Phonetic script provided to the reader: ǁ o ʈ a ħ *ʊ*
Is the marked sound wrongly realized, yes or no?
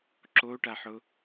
no